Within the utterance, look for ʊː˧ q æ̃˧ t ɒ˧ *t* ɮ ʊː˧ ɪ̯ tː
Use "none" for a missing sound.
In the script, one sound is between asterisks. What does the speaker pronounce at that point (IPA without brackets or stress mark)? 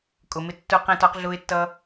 q